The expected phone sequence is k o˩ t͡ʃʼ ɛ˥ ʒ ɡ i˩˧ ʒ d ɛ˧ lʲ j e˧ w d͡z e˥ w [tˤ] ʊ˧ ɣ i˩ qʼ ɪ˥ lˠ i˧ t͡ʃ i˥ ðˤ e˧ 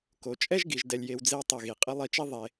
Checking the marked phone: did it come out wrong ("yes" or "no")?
no